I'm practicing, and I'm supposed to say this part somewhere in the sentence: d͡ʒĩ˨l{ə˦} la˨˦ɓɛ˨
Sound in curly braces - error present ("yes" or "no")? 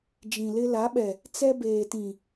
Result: yes